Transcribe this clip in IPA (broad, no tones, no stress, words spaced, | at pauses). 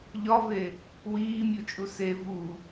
ʎɒve | wiːmʲut͡ʃʼu se vu